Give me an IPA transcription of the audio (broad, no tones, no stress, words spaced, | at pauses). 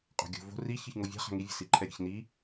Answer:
qʼo̤ɡʲo̤ vo̤ ri çɯçŋovʲa̤ χa̤ŋi vʲə̤siǃʰɛɾʲə̤ç ni